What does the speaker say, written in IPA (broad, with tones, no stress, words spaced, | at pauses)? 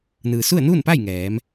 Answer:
nɯː˩su˥˨ə̯nuː˥˨npa˥˨j ŋɛː˩˧m